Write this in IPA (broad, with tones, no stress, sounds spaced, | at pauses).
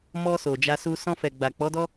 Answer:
m ɔ˧ s o˨ d͡ʒ a˧ s u˧ s ɔ̃˧ f ɛ˨ ɡ͡b a˨ k͡p ɔ˨˦ d ɔ˦